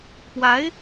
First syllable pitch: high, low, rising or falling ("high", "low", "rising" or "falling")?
rising